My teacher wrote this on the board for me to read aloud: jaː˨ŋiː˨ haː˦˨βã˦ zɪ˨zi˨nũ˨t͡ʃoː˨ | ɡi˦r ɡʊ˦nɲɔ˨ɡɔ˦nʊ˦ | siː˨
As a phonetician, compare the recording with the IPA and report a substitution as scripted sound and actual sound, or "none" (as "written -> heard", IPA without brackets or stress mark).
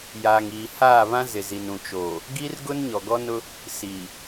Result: none